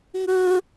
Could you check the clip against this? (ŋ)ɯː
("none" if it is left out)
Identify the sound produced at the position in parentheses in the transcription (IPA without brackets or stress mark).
ŋ